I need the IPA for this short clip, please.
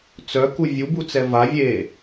t͡sœku vʲubut͡sɛ va vʲe

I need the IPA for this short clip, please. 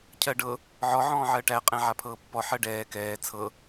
cʰɜɖɤ | ʕɔ ʕɔ̃ːʕɜʈæ qʼɛ̃ʕapʰɤːpːɔ ħɜɖɛː kɛː t͡sʰɤ

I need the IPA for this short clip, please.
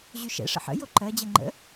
ʑyʃɛ̰ ʂə̰ħə̰ joǃɜ d͡ʑɛŋ͡ǃə̰

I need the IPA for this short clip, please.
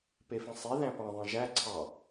pefĩsˤe ðæ̃pɑ̃ ðˤĩʒæ ǀʰɑ

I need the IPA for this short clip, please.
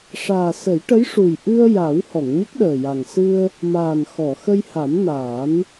ʂaː˨˩sə˨˩˦jʈə˧˥jʂu˨˩j ʔɨ˧ə̯ ja˨˩˦w hɔ˨˩˨ŋɲə˦˥k̚ɗəː˨˩ja˨˩ŋ sɨ˧ə̯ | maː˨˩nxɔ˨˩˨ xə˧jha˨˩˦mnaː˨˩˦n

